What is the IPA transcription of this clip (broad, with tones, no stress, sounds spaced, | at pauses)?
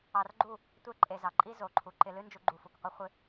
ɑ˧ r ɡ͡ǃ u˦˨ | tʷ e˦ ǃʼ e˧ z ɑ˨ ǃʼ i˦ z o˨ ǃʰ u˨ ǃ ɪ˧ l ɨ˦ n d͡ʒ u˧ ɡ͡ǃ u˧ f u˨ k qʷ ɨ˦ χʷ ɪ˦